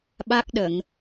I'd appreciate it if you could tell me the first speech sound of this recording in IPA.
ɓ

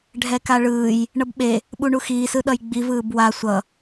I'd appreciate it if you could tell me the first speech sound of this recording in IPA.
ɖʱ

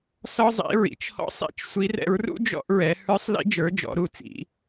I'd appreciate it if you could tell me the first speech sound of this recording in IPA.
s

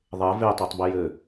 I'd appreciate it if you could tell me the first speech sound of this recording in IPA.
ðˤ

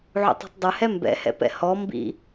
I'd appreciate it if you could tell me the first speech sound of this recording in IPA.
ʕ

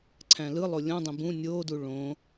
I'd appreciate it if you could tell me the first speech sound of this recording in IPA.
ǀʰ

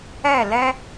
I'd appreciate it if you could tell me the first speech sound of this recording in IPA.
ɛ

